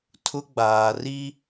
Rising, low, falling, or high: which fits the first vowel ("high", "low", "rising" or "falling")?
high